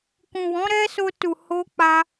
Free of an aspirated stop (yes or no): yes